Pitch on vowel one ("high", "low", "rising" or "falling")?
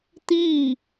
falling